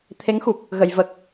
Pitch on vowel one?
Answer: rising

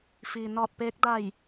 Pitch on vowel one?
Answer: low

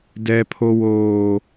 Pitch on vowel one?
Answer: high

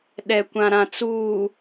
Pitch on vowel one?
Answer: low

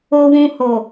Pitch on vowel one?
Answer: low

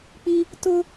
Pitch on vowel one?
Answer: high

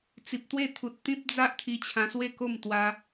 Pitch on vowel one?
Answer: low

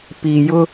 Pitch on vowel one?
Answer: low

